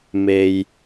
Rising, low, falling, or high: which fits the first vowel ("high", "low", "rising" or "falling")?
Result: low